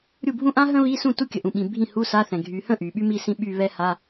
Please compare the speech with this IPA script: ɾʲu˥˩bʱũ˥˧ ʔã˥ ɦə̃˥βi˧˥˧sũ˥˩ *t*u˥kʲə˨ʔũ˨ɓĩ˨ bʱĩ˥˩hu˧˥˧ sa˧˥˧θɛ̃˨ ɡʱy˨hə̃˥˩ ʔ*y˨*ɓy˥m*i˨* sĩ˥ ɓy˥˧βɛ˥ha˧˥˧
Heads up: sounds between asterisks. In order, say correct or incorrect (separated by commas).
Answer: correct, correct, incorrect